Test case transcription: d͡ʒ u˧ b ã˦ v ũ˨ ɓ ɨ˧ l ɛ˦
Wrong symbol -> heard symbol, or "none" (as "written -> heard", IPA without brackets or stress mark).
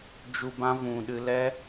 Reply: ɓ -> ɗ